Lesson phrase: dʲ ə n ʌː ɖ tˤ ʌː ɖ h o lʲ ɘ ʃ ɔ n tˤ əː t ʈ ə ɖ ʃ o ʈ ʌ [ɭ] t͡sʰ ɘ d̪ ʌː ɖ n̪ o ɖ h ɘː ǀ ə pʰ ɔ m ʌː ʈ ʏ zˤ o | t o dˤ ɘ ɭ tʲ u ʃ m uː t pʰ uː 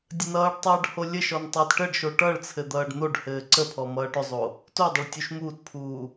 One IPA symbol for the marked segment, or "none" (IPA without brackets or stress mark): ɭ